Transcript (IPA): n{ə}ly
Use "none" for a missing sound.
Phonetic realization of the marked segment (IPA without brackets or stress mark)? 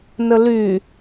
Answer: ə